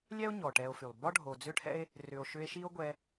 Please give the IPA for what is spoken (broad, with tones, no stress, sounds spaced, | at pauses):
lʲ ɛ˥ o̯ ɲ ɔ˩ ʈ ɛ˨ o̯ f y˩ lˠ b ɒ˥ ɖʱ o˨ d͡z ʏ˥ ʈʰ ɛ̰˥ e̯ | r ʏ˨ o̯ ʃ ʏ˦ e̯ ʃ i˥ o̯ ɡʷ ɛ˦